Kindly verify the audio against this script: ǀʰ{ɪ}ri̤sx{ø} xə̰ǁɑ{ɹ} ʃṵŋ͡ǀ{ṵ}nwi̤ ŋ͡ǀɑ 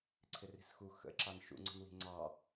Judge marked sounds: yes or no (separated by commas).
yes, no, no, no